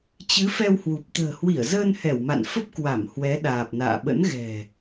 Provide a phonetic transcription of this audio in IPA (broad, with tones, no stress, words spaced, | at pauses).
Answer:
t͡ɕɨ˨˦fɛ˧whwu˨˩p̚ t̪ə̤ː˨˩hwi˧˩ə̯zəː˧n hɛ˧˩wma̰˧˨nfə˦˥p̚ kwa˧˩m hwɛ˨˦ɗaː˨˩p̚na̰ː˧˨ ɓə̰˧˥nɣɛ̤˨˩